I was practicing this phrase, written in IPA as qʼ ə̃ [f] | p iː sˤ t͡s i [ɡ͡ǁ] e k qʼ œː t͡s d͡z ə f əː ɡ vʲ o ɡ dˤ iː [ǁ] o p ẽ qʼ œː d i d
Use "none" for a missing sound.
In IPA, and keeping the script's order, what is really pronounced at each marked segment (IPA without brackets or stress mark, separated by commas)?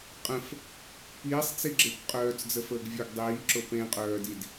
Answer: f, ɡ͡ǁ, ǁ